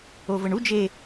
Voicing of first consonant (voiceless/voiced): voiced